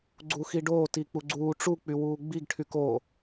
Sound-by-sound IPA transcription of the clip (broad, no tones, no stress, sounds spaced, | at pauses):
ɡ͡ǀ u x i ɖ oː t i k͡p u ɡ͡ǀ uː ʈ͡ʂ u k͡p y w uː ɡ͡b i ɡ ʈʰ y k oː